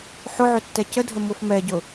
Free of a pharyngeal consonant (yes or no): no